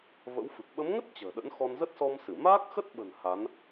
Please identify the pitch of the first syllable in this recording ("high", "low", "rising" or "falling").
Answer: rising